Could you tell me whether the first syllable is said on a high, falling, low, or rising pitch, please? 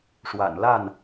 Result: low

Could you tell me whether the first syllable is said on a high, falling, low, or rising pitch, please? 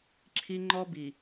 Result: high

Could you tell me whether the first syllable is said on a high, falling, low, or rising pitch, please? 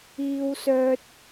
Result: low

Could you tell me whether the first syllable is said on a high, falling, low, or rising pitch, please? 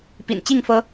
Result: low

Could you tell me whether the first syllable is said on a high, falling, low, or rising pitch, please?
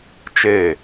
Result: falling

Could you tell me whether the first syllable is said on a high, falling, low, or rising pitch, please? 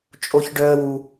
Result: high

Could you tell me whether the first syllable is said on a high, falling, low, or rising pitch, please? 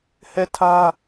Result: falling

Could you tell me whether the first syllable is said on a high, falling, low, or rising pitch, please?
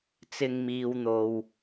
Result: low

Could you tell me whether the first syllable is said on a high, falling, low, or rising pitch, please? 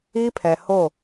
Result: high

